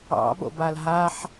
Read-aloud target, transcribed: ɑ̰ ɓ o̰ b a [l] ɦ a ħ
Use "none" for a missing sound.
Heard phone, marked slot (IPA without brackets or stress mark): l